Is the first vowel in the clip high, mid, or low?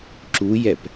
high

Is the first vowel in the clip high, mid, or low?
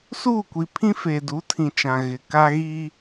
high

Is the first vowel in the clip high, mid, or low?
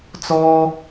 mid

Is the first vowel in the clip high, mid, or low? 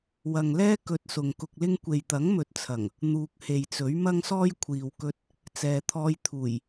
low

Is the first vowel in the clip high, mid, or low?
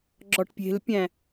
low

